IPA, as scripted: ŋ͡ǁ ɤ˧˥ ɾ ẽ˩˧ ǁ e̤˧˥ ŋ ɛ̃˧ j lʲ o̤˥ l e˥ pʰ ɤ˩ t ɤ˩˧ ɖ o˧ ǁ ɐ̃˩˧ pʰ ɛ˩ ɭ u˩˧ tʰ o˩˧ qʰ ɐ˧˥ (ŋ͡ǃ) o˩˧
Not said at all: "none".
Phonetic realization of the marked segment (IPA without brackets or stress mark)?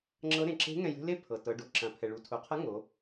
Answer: ŋ